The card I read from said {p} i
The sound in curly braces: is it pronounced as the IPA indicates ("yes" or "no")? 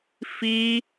no